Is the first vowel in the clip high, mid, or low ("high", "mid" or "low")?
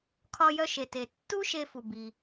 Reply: low